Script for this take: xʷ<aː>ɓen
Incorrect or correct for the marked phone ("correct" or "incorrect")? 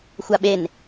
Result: incorrect